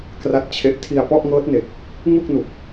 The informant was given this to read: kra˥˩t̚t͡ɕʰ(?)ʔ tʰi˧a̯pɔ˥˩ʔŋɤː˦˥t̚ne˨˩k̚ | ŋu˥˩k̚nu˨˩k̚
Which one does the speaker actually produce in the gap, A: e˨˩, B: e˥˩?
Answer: B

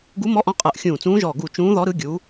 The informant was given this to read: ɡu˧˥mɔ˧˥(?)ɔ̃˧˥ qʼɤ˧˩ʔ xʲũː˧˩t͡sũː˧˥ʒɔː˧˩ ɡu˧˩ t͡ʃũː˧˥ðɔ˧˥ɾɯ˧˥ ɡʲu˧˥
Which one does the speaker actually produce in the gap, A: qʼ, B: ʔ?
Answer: B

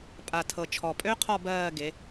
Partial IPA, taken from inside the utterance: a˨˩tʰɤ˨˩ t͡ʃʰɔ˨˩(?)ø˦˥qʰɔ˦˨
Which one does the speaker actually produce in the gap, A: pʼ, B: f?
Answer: A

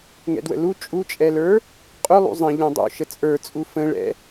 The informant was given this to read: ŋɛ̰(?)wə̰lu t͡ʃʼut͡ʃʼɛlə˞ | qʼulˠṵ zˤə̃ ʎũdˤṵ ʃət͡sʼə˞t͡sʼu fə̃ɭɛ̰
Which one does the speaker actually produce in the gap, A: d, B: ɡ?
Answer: A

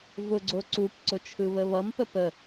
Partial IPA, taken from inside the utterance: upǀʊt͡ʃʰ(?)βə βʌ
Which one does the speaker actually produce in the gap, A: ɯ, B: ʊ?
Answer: A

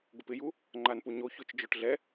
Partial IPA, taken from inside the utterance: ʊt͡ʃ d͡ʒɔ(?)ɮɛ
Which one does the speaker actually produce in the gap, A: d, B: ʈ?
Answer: B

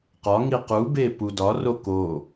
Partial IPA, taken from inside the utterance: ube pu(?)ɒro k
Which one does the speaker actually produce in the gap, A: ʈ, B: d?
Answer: B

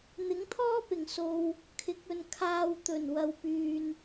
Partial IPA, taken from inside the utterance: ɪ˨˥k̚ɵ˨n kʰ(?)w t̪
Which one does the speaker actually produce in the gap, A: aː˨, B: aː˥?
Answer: A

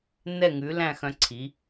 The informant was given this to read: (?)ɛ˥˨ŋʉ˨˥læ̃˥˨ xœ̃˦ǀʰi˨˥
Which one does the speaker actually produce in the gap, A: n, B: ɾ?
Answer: A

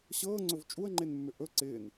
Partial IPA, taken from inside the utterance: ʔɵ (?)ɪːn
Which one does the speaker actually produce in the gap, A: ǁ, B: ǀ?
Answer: B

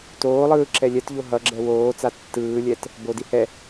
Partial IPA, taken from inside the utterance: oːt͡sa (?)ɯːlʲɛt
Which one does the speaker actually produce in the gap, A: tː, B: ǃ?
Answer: A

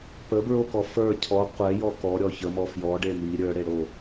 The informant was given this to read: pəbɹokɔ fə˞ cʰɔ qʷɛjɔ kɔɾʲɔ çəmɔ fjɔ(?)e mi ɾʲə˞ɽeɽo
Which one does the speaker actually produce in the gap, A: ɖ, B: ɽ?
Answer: A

